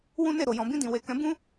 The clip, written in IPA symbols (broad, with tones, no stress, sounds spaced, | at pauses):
w ũ˦ n e˦˨ ɾ o˨ j ɔ̃˨ b ĩ˧ d ĩ˨ w e˨ k ɛ̃˨˦ b ũ˦